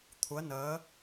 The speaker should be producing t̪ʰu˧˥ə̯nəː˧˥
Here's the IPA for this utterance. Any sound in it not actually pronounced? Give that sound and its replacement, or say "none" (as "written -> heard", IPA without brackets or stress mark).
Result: none